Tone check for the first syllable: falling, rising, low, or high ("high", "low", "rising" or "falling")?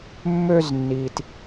high